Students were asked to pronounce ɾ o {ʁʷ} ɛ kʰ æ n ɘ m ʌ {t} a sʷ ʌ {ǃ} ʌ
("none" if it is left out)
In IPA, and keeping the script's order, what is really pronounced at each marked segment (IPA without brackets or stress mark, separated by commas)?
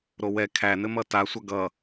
w, t, ɡ